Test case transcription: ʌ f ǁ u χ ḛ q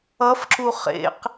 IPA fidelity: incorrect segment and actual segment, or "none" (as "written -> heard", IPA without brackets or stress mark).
none